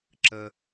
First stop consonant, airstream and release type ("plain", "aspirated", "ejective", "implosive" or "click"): click